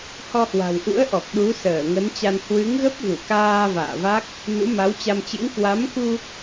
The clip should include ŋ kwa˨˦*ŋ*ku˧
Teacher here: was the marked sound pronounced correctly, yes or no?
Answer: no